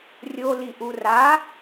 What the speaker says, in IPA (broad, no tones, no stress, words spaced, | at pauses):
rʲoliʔu ra